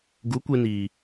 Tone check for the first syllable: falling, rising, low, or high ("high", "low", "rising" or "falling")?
rising